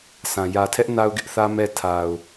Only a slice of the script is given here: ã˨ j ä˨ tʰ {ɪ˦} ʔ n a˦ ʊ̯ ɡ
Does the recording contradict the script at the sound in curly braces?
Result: yes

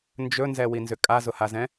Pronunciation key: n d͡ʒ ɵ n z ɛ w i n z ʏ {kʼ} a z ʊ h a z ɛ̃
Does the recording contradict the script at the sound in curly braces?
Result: no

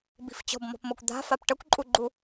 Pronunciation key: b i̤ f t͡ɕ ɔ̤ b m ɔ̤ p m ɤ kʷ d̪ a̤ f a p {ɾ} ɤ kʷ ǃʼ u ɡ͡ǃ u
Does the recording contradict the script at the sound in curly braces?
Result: yes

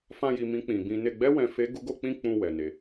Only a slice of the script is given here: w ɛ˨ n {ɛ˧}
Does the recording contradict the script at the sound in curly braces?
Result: yes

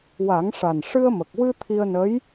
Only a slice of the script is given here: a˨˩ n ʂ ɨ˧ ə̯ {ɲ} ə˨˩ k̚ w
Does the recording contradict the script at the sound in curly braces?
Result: yes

